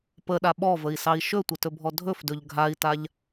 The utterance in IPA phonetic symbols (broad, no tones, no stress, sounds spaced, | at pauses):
p ə ɗ a ɓ ɔ v ə i̯ s ɑ i̯ ʃ ɵ tʷ ə t ɵ bʱ ɔ dʱ ɵ f d ɵ ʎ ɡʱ a i̯ t a ʎ